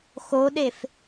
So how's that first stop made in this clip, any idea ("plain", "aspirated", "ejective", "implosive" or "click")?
implosive